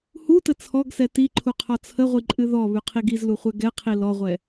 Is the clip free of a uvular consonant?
no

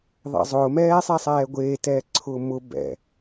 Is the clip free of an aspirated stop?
no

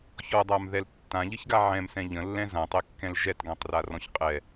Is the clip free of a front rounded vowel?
yes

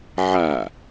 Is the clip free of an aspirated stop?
yes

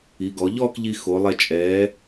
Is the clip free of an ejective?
no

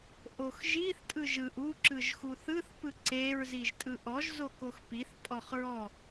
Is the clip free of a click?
no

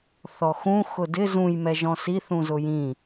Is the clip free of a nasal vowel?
no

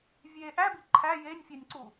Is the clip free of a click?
no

